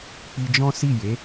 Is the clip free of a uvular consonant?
yes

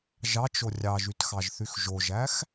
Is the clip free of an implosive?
yes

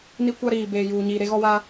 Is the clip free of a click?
yes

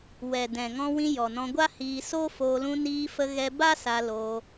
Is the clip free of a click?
yes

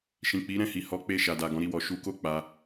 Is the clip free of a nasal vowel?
no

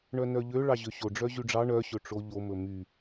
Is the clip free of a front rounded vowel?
no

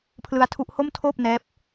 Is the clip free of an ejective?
yes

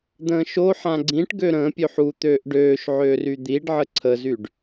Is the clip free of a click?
no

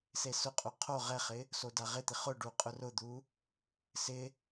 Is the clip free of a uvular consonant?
no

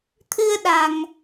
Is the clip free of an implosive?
no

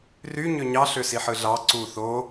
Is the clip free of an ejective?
yes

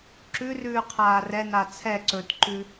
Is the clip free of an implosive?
yes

